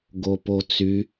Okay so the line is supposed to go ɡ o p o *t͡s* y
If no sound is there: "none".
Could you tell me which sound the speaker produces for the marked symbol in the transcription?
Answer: t͡s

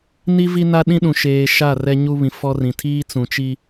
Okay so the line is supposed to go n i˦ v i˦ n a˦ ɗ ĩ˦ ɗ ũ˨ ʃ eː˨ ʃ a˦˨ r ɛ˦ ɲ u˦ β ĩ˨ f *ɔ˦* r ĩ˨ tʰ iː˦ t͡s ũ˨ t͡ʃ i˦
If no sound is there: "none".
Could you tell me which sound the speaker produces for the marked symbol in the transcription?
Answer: ɔ˦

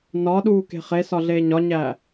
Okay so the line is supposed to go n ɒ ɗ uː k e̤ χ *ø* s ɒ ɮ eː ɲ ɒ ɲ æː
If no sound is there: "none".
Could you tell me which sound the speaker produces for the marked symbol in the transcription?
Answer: e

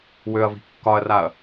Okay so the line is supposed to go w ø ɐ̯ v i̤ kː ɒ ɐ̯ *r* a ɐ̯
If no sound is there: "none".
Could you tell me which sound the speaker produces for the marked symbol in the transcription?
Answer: r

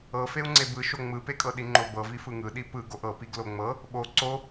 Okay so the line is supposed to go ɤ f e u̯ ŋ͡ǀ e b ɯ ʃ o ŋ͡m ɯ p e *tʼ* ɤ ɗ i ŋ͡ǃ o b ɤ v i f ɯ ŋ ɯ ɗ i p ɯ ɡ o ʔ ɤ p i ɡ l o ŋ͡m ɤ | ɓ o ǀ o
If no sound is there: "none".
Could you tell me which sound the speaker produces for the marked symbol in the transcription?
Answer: kʼ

